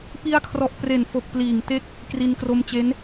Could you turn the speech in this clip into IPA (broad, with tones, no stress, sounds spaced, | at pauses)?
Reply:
p i˧ a̯ kʰ r ɔ˨˩ ʔ p r e˨˩ n f o˨˩ k̚ p l iː˨˩ ŋ t e˥˩ k̚ | k r i˧ n k r o˧ m t͡ɕ e˦˥ n